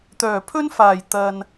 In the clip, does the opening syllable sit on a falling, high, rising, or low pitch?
low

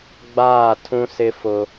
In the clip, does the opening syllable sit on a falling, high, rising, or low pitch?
falling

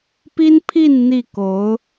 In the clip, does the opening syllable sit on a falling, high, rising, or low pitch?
high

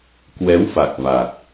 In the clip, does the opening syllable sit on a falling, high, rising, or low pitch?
rising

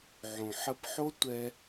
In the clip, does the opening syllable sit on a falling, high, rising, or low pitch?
low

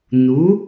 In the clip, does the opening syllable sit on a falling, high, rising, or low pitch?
rising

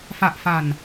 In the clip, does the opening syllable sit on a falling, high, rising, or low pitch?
low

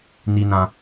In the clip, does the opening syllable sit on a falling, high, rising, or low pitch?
high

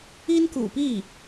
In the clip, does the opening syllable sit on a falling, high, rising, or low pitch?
high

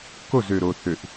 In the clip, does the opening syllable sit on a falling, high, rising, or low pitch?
falling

